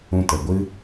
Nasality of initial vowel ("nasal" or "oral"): nasal